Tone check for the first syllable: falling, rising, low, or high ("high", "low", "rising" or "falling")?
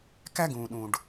high